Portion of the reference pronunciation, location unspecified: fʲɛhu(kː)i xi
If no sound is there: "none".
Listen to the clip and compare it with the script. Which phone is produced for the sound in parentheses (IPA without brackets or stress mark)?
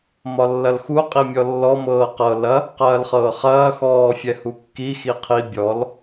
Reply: kː